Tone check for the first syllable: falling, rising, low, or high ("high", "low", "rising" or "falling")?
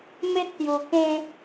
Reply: high